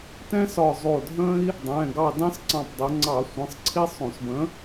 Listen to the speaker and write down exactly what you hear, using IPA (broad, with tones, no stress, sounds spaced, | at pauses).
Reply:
t ɛ̃˦ s ɒ˧˩ zˤ o˧˩ dʱ ə̃˦ i̯ | dˤ ɛ̃˩˧˩ ɡ ɑ˧˩ d ɑ̃˦ s ǀ ɑ̃˧˩ p dˤ ə˩˧ ŋ͡ǀ ɑ˧˩˧ sʷ ə̃˩˧˩ sˤ ǀʰ i˦ sˤ õ˧˩˧ s b ə̃˨˥